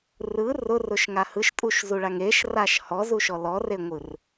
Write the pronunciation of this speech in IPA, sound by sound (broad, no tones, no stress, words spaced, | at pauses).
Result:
rɯ rʊrʊʃŋa hɯʃtʼuʃzuɭaŋ eʃraʃ hɔzuʃɔ lɔreŋʷɯr